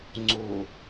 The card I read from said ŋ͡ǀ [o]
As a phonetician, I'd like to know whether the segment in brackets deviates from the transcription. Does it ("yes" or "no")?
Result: no